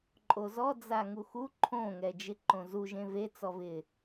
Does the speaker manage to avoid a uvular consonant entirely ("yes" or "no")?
yes